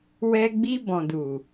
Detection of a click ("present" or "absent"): absent